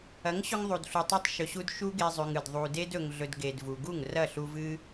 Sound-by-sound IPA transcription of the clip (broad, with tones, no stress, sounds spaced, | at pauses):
ɐ˨˦ ŋ ɕ ɵ˧ ŋ ðˤ u˨ d ɬ u˨ tˤ ɨ˧ tˤ ʃ ɵ˨ ɕ u˧ d ʃ u˦ ɡ e˧ zˤ ʉ˨ ŋ ɨ˨ d ðˤ u˨ d e˧ d ɵ˨ ŋ ɮ ɵ˨ d ɡ e˨ d v u˨ ɡ u˦˨ ŋ r ɐ˦˨ ɬ u˧ v ɨ˦